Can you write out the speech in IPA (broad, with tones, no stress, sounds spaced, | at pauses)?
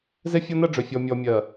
z e˦ fʲ ɔ˦ n ɜ˦ ɖ͡ʐ ø˨ fʲ ɔ˨ mʲ ɔ˨ mʲ ɜ˨